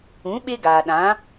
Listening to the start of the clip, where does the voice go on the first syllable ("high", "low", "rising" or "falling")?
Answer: rising